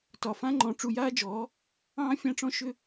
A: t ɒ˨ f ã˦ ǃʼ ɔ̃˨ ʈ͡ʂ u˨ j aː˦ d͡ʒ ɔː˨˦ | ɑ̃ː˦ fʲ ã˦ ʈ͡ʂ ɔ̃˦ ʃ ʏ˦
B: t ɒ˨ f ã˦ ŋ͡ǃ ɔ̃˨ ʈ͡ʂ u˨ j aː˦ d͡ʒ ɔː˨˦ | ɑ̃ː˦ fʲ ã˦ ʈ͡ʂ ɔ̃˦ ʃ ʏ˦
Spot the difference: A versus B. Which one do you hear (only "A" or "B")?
B